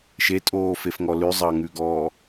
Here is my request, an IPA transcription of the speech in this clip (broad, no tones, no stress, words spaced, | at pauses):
ʃetʼoːfefŋɔ lʉzˤɑŋʉɡɔː